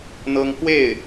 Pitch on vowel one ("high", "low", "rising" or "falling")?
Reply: high